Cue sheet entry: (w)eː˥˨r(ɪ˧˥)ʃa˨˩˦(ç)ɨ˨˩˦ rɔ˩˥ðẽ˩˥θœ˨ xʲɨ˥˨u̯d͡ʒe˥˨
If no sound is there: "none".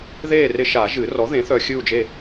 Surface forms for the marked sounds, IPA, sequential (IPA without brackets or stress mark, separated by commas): ð, ɪ˧˥, ʒ